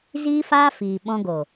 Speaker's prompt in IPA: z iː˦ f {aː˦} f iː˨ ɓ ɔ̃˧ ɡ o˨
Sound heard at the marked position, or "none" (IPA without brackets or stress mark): aː˦